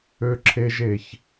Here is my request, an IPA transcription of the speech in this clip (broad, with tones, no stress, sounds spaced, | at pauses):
ø˥ ǁʰ e˥ ʒ e˦ ç